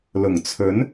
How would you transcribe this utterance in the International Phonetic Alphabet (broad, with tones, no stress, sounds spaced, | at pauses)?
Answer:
l ʊ˨˩ ŋ t͡sʰ ɵ˨˥ n